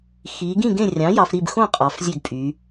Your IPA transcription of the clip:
x i˩˧ ɡ ĩ˥˩ ɡ ẽ˥˩ rʲ ɑ̃˩˥ j ɑ˩˧ f ɾ i˥˩ b x õ˥˩ qʼ ɑ˩˧ f zʲ ø˥˩ ɡ pʼ y˩˧

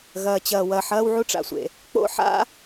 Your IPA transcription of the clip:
ɣ ɐː˩ t͡ɕ ɐː˩ w ɐː˩ ħ ɐː˥ w ʕ u˥ ʈ͡ʂ a̰˩ sʷ ḛ˩ | k͡p o̰˥ ħ a̰˥

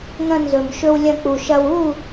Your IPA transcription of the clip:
ŋ ɐ̃˧ n z ɵ˨ m ʃ ɵ˧ w lʲ ɐ̃˧ k͡p u˨ ʃ ɐ˧ w u˦˨

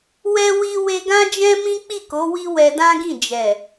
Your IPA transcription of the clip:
w ɛ˧ w i˦ w e˧ ɡ ã˦ d͡ʒ ɛ̃˦ m ĩ˦ k͡p i˦˨ k o˨˦ w i˦ w ɛ˧ d ã˦ ɡ ĩ˦˨ d͡ʒ ɛ˨

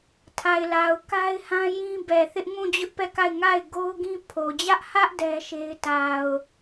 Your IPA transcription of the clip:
tʰ a˨ ɪ̯ l a˨ ʊ̯ k a˦ ɪ̯ h ã˦ j ĩ˦ b ɛ˨ θ ɪ˦ ʔ ŋ ũ˦˨ d͡ʑ ʊ˦ ʔ p ɛ˦˨ k a˦˨ ɪ̯ ŋ a˦˨ ɪ̯ ɡ o˦ ʊ̯ ɡ ĩ˦ pʰ o˨ d͡ʑ ä˦ ʔ h ä˦ ʔ d ɛ˦ ʃ e˦ ɪ̯ t a˨ ʊ̯

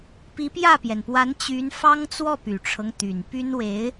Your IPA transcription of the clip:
p i˧˥ p j ä˥˩ p j ɛ˩ n p w a˧˥ n t͡ɕ y˧˥ n f ɑ˥ ŋ t͡s w ɔ˥˩ p y˨˩ ʈ͡ʂʰ ɤ˦ ŋ t̪ y˨˩ n p y˥ n w e˧˥ ɪ̯

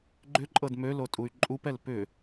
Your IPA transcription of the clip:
ɡ͡ǃ ʏ ǃʼ ɤ d m ø l o tʼ u y̯ ǃʼ u p ɛ l p ʏ

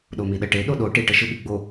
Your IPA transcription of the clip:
ɗ o m i ɗ ə ʈ e ɗ o ɗ o ʈ i ʈ ə ʃ ɯ ɓ i ɡ͡b o

